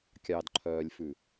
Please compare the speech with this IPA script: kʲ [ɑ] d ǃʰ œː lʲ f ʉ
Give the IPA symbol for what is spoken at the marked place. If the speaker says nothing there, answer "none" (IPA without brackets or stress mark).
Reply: ɑ